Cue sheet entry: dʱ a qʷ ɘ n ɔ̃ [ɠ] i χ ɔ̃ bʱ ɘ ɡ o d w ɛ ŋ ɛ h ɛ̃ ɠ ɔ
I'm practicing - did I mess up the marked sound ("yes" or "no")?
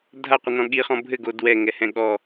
no